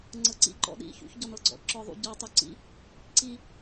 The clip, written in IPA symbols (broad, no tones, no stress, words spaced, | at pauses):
ŋ͡ǀɤǀḭ ǃɔ̰ɗḭ çṵçɟɔnɤɡ͡ǀɔ̰ ǁɔðˤṵ ɟɔ tˤuǀḭ | ǀi